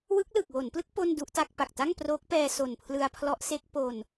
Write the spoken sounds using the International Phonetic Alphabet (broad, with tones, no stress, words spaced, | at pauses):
wɯ˦˥k̚lɯ˨˩k̚wo˩˦nplɯ˦˥k̚ po˥˩ndu˦˥ʔta˥˩k̚ pa˨˩k̚ta˥˩ŋ proː˦˥k̚pɛː˧ so˨˩npʰlɯ˧a̯ pʰlɔ˦˥ʔ se˦˥k̚po˧n